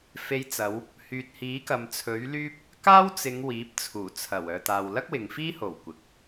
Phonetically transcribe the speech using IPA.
fe˨˧jt͡sɐ˨˧w | hyː˨t̚hiː˨˥kɐ˨m t͡sʰɵ˨˥ɥlyː˥p̚ | kaː˥wt͡sɪ˨˧ŋ wiː˨˥p̚t͡sʰuː˨˩t͡sʰɐ˨˩w œː˨ t̪aː˨wlɐ˥k̚wɪ˨ŋfiː˥ ho˨˩w kʷɪ˨k̚

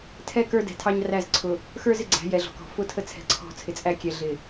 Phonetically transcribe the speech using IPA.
tʰɛ˦ kə˞˦dɛ̤˨tʰɑ˦ɲ ræ˦˨zǀʰʊ˨ | xə˞˦zɪ˨ɡ͡ǀæ̤˨˦ jɛ˨ɮɔ̤˨kɔ̤˨ fʊ˦tʰə˦t͡sʰɛ̤˨ ǀʰɔ̤˦˨t͡sʰɪ˨t͡sʼæ˦kʲɛ˨ ɮɪ˨

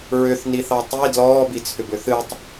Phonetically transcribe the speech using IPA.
ɹʏθniθɑ tˤi dlɔːbit͡sʰʏb ʏθɨtˤ

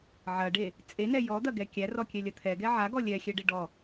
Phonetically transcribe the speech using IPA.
ʕɐɖe | t͡sʼenɛ jɔd̪ɐɡɛ kʲærɔkʲɛlʲɐ t̪ʰɛɡɛ ʕaɡɔ lʲɛxʲɛɖe ɖɔ

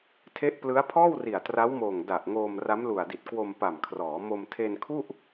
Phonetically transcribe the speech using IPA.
tʰe˦˥ʔplɯ˦˥a̯pʰɔː˥˩w ri˨˩a̯tra˦˥wmoː˨˩ŋ da˨˩ʔŋoː˧m ra˦˥mlu˨˩a̯di˨˩t̚ kwo˧mpa˨˩mkʰrɔː˩˦ mo˧mtʰe˧nkʰu˥˩ʔ

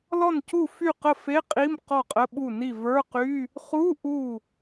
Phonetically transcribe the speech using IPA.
lɔ˥˩ncu˥˩fy˥˩qə˥˩ fe˧˥˧qʼi˧˥˧m qɔ˥˩qʼə˧˥˧ɓu˥˩ni˥˩ və˞˧˥˧qy˧˥˧ | χu˧˥˧ ʔu˥˩

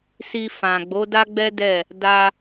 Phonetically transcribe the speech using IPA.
si˧fã˨ ɡ͡bo˨˦da˦ɡ͡bɛ˦dɛ˦˨ | da˧

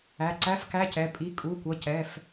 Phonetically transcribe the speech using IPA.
æ˩˧˩ǀæ˧˥˧fkæ˧˥˧cɛ˩˧˩ pʼi˩˧˩kʼu˩˧˩kʷʌ˩˧˩ cɛ˩˧˩f

